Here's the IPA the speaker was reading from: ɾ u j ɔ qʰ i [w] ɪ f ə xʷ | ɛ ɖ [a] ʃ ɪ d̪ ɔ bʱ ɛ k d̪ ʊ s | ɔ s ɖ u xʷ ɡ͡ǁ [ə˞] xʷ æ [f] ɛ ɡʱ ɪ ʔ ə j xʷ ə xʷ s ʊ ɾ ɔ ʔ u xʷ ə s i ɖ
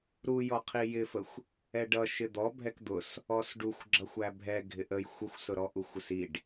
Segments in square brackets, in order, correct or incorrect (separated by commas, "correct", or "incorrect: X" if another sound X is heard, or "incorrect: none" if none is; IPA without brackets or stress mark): incorrect: j, incorrect: ʌ, incorrect: ʌ, incorrect: bʱ